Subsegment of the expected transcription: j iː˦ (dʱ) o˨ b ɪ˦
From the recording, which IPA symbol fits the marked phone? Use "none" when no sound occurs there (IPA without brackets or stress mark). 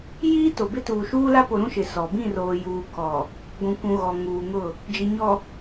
t